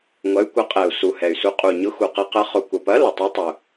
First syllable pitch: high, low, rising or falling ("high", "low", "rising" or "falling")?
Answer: rising